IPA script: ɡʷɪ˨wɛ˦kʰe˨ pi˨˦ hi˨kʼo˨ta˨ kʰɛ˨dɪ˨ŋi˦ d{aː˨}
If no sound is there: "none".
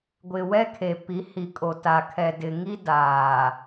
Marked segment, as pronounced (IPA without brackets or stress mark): aː˨